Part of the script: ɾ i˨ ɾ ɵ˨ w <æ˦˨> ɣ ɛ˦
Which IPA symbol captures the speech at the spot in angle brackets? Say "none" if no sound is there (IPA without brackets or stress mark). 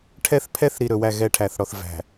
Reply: æ˦˨